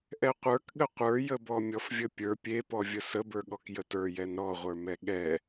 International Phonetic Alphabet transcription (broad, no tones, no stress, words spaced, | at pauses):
ʔɛqʷə˞kɠə qʷə˞jəbɔ mʲɔfvʲəpʲə˞ pʲepɔvʲə səbə˞ɠɔk jətə˞jɛn ɾɔʁʷə˞mɛ ɠɛ